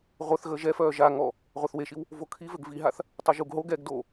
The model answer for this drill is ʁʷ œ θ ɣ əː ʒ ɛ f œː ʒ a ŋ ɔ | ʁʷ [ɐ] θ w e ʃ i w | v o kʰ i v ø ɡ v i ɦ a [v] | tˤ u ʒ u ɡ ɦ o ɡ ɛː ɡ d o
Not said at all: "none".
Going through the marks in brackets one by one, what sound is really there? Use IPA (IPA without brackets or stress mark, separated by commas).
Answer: a, θ